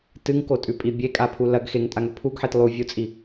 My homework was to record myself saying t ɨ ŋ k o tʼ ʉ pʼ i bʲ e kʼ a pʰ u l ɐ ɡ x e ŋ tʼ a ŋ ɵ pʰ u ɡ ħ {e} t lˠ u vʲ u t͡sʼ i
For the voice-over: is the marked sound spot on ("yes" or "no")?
yes